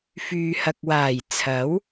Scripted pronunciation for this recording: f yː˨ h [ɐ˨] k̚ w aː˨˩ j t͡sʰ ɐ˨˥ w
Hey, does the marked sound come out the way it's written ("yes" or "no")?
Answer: yes